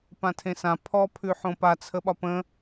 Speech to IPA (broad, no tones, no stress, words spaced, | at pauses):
pãtʰẽsã pʰɔpʰʉ ħõpat͡sʰəɓɒ pə̃